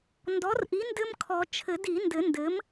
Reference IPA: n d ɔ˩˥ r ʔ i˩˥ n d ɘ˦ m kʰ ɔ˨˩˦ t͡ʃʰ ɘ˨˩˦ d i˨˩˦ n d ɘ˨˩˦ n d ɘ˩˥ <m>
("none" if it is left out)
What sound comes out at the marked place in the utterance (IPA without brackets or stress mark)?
m